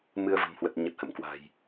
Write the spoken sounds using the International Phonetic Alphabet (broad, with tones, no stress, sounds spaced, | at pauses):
m ɨ˧ ə̯ v ə̤˨˩ m h w ə˨˩ t̚ ɲ ə˨˩ t̚ h ə̰˧˨ m k w a̤˨˩ j